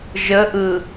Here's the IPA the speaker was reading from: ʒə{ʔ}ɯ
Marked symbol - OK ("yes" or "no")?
yes